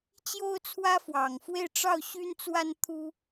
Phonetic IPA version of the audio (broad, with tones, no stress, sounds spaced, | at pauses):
t͡ɕ j o˥ ʊ̯ t͡sʰ w ä˥ f w ɑ˨˩ ŋ f w e˥˧ ɪ̯ ʈ͡ʂ ɑ˥˩ ʊ̯ ɕ y˥ n t͡s w a˥ n t̪ʰ u˥